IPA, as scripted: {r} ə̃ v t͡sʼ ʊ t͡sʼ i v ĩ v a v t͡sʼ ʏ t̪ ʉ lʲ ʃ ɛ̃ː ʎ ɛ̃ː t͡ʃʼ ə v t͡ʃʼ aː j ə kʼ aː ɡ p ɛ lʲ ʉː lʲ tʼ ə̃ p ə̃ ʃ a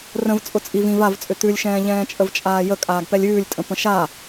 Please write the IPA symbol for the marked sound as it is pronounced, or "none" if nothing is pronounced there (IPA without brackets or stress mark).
r